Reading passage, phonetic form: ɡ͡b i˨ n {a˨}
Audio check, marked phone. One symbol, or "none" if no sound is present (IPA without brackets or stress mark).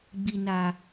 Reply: a˨